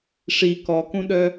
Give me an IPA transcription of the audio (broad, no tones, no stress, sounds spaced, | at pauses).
ʂ i k ɔ k ũ ɗ œ